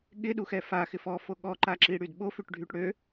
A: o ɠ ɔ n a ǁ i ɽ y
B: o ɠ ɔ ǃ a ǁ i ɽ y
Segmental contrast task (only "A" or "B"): B